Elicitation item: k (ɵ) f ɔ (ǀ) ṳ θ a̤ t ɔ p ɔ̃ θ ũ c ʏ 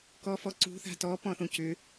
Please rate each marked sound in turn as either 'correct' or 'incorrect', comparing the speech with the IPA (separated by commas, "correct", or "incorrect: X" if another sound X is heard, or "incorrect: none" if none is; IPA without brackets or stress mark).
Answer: incorrect: ɔ, correct